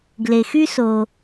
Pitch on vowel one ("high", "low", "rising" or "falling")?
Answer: low